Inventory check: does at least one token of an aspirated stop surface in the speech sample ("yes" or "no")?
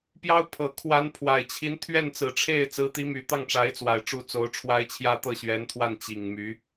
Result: yes